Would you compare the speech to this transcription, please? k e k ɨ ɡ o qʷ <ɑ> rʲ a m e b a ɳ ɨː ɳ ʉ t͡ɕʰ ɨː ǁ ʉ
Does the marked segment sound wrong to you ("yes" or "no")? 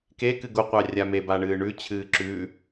no